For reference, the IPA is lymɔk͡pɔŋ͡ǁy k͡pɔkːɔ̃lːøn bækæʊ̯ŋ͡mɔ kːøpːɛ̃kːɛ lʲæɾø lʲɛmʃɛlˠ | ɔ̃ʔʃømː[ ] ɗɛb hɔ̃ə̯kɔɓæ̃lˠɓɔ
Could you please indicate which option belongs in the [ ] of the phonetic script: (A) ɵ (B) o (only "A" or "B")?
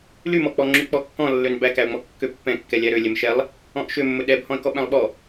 A